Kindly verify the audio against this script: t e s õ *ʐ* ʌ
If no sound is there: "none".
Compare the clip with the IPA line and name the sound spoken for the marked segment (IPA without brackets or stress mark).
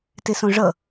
ʐ